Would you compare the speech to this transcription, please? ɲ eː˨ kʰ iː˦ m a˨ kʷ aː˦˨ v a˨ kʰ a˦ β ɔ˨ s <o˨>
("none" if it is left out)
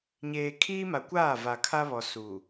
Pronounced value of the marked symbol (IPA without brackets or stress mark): u˨